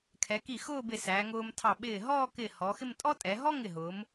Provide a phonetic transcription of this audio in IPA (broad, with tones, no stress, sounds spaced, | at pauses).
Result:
kʰ ɛ˩˧ k i˧˩ x ʊː˥˧ b ɪ˧˩ s æː˩˧ ŋ ʊː˧ m tʰ ɑ˧˩ ɓ ɪː˧˩ ɦ ɔː˥˧ k ɪ˧˩ h ɔ˩˧ x ɪ˥˧ m tʼ ɔ˥ tʼ ɛ˩˧ ɦ ɔ˥ ŋ ɪ˧˩ ɦ ʊː˩˧ m